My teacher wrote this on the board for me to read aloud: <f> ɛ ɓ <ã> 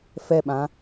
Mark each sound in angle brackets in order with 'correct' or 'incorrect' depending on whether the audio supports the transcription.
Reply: correct, correct

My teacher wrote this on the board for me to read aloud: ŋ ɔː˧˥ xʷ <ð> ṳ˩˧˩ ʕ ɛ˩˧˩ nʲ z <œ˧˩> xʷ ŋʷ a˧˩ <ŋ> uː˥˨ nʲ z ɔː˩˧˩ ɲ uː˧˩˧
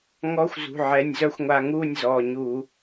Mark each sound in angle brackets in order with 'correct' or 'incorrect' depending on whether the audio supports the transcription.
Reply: incorrect, incorrect, correct

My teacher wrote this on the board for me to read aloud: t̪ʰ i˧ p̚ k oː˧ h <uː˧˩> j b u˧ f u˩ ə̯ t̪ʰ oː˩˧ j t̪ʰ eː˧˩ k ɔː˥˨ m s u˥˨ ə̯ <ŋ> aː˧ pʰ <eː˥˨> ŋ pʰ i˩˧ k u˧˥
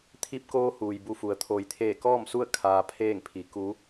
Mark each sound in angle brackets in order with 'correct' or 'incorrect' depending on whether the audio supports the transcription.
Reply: incorrect, incorrect, correct

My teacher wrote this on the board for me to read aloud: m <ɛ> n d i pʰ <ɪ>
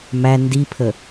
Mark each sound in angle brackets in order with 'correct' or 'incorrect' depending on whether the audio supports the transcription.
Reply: incorrect, incorrect

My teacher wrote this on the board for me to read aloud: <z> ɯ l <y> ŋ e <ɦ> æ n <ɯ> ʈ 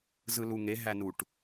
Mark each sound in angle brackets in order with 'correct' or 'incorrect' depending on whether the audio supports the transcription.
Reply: correct, incorrect, correct, incorrect

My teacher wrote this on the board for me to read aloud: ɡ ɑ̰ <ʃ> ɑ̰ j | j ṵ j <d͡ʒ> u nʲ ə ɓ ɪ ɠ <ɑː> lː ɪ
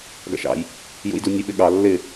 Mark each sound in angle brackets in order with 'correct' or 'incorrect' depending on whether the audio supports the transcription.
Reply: correct, incorrect, incorrect

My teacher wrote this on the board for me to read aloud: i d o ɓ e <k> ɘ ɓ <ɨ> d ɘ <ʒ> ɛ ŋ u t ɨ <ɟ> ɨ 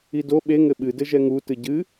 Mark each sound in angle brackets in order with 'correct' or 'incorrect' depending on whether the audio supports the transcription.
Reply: incorrect, correct, correct, correct

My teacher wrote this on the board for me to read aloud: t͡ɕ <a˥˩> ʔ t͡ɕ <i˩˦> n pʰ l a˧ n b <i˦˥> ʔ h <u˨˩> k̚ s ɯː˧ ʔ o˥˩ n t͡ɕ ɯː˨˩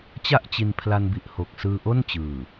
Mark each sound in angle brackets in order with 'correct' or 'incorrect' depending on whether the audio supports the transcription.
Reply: correct, incorrect, incorrect, incorrect

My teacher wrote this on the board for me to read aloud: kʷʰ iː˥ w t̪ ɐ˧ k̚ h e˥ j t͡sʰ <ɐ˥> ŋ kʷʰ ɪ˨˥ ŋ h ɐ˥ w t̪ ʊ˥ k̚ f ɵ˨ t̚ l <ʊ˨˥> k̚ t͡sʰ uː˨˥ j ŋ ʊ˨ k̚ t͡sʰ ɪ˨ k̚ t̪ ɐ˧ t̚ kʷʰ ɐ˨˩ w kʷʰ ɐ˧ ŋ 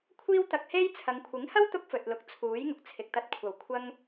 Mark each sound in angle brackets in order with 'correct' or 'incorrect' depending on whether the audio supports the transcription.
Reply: incorrect, correct

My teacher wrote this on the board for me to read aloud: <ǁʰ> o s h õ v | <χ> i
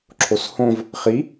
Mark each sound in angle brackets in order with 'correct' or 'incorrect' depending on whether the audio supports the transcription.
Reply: correct, correct

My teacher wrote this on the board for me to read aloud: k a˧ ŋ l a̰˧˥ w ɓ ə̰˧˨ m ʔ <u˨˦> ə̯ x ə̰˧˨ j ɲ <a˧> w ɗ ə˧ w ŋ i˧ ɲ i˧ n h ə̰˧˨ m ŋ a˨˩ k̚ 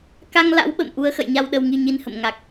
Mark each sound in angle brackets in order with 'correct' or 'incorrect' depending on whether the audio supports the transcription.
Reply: correct, correct

